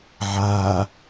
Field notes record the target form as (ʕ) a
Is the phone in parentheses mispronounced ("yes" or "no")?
no